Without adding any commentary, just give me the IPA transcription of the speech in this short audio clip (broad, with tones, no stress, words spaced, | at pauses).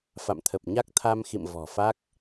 fa̰˧˨mt̪ʰə˨˩p̚ ɲa˦˥k̚t̪ʰa˧m xḭ˧˨m vɔ̤˨˩fa˦˥k̚